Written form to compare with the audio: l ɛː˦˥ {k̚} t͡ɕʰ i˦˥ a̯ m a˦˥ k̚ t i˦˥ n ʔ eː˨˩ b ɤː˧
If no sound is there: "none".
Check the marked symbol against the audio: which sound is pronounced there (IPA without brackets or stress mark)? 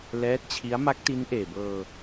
t̚